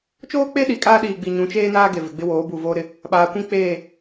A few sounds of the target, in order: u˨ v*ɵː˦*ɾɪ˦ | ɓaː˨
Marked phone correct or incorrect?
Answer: incorrect